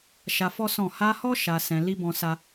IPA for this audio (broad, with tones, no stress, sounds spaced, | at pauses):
ʃ a˧ f ɔ˦ s ɔ̃˦˨ h a˧ h ɔ˦ ʃ a˧ s ɛ̃˧ l i˦ b ɔ̃˧ s a˦